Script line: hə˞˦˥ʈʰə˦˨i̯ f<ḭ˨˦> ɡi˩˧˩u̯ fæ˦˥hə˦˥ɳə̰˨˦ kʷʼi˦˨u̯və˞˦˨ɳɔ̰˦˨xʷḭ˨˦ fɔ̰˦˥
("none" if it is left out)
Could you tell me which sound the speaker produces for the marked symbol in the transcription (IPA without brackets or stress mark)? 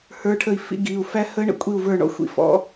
ḭ˨˦